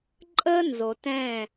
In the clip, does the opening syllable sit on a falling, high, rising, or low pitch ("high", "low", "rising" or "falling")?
high